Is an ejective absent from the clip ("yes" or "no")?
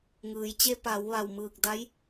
yes